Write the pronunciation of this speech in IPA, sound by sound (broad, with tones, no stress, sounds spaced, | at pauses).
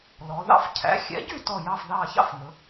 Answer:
l ɔ˩˧ ð ɑ̰˥˨ f cʰ æ̰˩˥ xʲ ɛ̰˩˥ ɟ y˥˨ t ɔ˥˨ j ɑ˥˨ f ð ɑ˥˨ ç ɑ̰˥˨ f ŋ ɵ˩˧